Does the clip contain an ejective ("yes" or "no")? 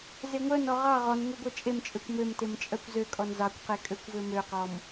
yes